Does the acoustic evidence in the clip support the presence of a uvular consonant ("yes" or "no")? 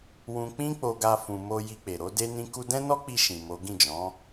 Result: no